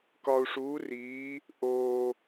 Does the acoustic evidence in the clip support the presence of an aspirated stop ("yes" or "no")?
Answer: no